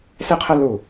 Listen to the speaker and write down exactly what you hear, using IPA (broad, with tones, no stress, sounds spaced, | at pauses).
s ɪ˥ qʰ ə˥ l u˧˩